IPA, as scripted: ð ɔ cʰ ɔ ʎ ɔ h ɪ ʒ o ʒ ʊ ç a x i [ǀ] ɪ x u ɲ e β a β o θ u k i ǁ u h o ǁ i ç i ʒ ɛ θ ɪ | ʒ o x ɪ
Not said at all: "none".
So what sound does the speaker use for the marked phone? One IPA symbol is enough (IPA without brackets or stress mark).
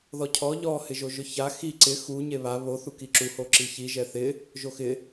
ǀ